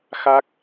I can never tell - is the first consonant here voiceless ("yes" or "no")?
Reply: yes